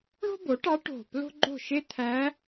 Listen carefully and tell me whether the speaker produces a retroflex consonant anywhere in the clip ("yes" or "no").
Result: yes